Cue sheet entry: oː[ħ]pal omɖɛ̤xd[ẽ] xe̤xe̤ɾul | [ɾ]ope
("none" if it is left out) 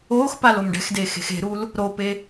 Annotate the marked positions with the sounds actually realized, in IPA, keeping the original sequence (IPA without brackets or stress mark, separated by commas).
x, e, ɾ